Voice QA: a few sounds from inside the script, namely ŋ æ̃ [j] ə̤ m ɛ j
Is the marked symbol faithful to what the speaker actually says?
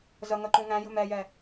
yes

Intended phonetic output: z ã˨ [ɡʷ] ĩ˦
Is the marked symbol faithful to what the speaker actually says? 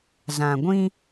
yes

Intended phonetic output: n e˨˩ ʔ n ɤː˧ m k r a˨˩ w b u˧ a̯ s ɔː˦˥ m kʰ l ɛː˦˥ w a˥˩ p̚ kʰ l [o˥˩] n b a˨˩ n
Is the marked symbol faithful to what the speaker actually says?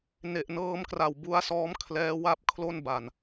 yes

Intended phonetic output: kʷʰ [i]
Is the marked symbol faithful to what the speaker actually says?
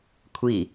yes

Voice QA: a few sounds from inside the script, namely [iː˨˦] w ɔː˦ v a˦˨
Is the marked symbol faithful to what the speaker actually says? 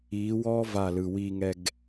yes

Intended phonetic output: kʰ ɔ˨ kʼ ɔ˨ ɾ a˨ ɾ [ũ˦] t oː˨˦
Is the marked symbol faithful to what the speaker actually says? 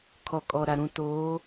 no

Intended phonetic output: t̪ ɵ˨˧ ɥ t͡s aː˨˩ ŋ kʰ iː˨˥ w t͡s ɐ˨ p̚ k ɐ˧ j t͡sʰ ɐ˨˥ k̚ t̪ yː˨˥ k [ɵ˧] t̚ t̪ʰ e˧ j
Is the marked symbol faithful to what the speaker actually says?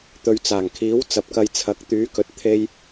no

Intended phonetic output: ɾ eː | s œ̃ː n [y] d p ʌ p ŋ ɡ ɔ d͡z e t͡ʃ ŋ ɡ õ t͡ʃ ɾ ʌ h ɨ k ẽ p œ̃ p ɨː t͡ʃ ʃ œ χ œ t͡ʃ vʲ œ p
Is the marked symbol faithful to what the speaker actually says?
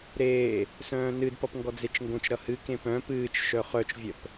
no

